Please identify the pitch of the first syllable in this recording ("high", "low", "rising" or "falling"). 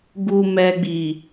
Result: low